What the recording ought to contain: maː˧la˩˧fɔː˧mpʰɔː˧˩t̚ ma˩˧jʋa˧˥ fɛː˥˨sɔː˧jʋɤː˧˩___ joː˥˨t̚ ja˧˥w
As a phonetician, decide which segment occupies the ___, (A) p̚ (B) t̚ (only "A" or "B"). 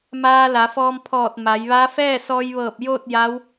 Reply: A